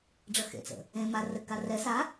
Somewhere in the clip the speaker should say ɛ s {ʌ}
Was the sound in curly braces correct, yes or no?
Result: no